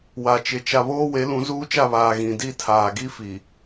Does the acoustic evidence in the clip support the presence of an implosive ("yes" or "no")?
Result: no